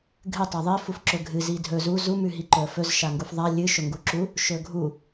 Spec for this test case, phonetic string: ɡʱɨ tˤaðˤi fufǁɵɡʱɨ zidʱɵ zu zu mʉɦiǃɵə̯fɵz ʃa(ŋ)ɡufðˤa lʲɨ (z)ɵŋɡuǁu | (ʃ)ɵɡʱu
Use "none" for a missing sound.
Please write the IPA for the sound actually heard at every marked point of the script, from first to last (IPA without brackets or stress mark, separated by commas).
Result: ŋ, ʃ, ʃ